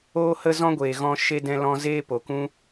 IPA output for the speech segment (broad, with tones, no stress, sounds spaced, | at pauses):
oː˦ h ə˦ z ɔ̃˦ ɡʷ eː˨ ɣ ɔ̃˦ ʃ e˦ d ɛ̃˦ l ɔ̃˧ z eː˦ p o˨ k ũ˦